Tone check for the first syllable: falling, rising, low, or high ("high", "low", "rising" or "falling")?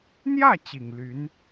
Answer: falling